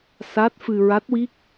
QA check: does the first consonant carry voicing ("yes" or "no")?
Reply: no